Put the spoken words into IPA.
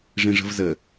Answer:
ʐĩʐə̤vzə

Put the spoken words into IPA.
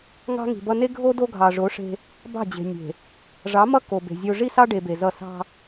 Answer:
ŋɑ̤˦ŋi̤˨bʌ˦ ne˦ɡʱo˦ do˦ɡʱɑ˨ʐo˨˦ ʂe̤˦ | bɑ̤˦˨d͡ʑe̤˨ nʲe̤˨ | ʐɑ˨˦mʌ˦ ko˨be̤˨zʲo˦ ʐi˦sɑ˦ɖe˨ be˨zʌ˦˨ sɑ̤˦

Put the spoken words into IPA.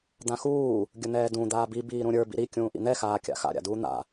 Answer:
d̪ãxuː | ɡʲən̪ɛːdũ d̪aːbi biːɾũɾʲə˞ bḭɾi kʲũːʔḭn̪ɛ xaːkʲa̰xa̰ ɾʲa̰duːn̪a̰

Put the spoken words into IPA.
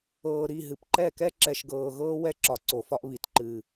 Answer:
ɤː˨ɾi˦˨ɦɨ˨pǃɛ˦˨ kɛ˦ǁɛ˨ʃɡɤː˨ɣɤː˦ wɛ˦ǁɒ˨ ǀo˨fɒ˦ʔβi˨t ǃɨː˨

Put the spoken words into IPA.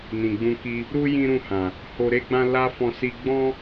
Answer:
nĩ˨ɡ͡bũ˧ki˧ | ɾu˦ jĩ˦ɾũ˦˨hã˨ | ho˧ɾe˦ɡ͡bã˦ la˦fɔ̃˧si˧ ɡ͡bɔ̃˦

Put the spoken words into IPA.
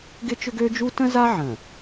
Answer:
ɡɪ˦t͡ʃʏ˦ɡø˦d͡ʒu˦ tə̃˦za˦ ʕə̃˨

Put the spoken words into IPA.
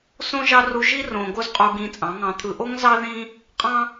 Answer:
sõ˦ʒɑ˦ru˧ ʒi˦rõ˨ ɡo˦zqʼu˧ɡĩ˧ t͡sʼɑ̃˨˦ŋɑ̃˧t̪ʰɯ˧ ʔo˦ŋzɑ˦ðĩ˦ | qʼɑ̃˦

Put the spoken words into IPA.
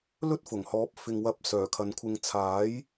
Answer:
lɵ˥t̚ fʊ˨˩ŋhɔː˨˥p̚ fɪ˨ŋwɐ˨˥p̚ sœː˨˩kʰɐ˨˧nkʷʰɪ˧ŋ t͡sʰaː˨˥j

